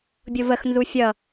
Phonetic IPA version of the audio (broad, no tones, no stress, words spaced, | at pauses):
bʲovəx nzufʲʌ